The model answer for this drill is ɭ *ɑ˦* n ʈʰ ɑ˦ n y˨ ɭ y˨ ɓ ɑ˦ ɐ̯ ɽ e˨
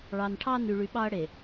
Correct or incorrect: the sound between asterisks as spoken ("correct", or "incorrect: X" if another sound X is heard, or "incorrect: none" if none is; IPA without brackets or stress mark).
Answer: incorrect: ɑ˨